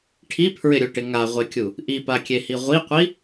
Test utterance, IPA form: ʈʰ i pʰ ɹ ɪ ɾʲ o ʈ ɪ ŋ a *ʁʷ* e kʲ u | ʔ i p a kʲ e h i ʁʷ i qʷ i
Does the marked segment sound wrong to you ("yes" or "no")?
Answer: no